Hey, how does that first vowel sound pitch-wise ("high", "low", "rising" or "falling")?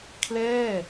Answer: falling